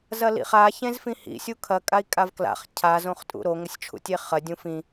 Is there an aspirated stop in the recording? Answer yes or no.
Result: yes